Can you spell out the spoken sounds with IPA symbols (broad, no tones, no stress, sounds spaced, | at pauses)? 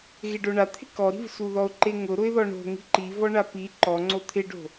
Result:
ɣ ɪ ɖ o ɳ a t̪ʰ ɪ k ɔ ɾ i̤ v s u ð ɔ ʊ̯ ǃ e ŋ ʊ ɾ ʊ ɪ̯ ð ɔ ɳ o̤ ŋ i̤ ǃ i v ɔ ɳ a p i ǃ ɔ ŋ͡ǀ o t̪ʰ ɪ ɖ o̤